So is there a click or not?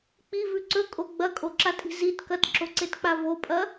yes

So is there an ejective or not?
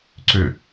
no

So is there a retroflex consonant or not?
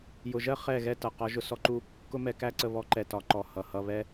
no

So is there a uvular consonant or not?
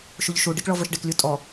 no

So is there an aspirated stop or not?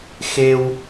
no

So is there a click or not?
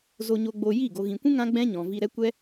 no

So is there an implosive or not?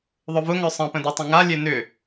no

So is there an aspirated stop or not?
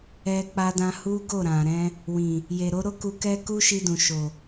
no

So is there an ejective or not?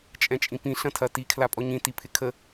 yes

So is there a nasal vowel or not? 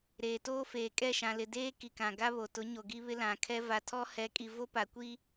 yes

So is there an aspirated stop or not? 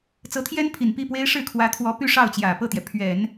yes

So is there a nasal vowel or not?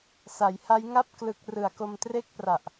no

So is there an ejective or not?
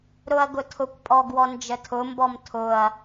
yes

